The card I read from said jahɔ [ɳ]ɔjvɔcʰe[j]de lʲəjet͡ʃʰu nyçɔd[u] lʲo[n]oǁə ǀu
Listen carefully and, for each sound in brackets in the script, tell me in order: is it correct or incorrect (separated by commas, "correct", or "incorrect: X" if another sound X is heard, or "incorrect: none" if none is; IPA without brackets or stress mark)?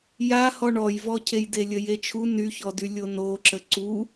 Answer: correct, correct, incorrect: y, correct